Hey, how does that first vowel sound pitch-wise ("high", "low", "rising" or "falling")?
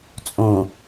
low